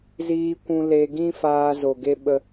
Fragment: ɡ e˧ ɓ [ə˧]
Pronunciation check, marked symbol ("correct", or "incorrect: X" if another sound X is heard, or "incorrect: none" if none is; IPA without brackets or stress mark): correct